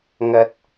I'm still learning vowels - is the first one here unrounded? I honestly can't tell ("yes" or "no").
yes